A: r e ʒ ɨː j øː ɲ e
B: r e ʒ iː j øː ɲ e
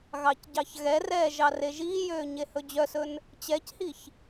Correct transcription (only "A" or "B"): B